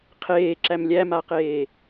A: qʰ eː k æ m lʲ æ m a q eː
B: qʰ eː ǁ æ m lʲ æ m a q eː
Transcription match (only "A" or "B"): B